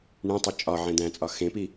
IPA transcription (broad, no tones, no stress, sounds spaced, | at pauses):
ɳ ẽ tˤ u t͡ʃʼ ɒ ʕ ẽ d̪ æ̃ t͡sʼ ɒ x ẽ p i